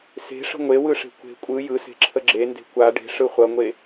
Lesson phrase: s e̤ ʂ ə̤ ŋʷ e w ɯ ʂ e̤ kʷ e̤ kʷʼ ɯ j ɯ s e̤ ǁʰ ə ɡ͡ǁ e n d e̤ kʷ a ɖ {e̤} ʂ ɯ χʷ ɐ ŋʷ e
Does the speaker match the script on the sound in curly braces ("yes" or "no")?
yes